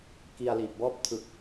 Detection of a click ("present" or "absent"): absent